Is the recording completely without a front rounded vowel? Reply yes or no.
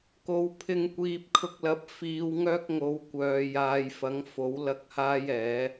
no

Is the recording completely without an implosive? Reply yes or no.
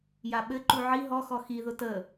no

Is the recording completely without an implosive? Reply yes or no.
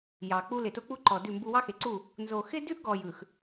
yes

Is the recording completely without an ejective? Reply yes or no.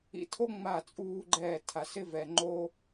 no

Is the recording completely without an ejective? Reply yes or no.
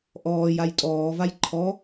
no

